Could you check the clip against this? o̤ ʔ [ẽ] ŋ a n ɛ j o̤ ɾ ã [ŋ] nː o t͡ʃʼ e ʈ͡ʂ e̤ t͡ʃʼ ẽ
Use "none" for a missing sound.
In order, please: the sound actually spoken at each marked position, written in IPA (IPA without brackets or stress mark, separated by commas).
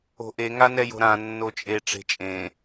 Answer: e, none